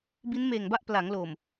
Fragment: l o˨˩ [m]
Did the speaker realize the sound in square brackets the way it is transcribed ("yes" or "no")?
yes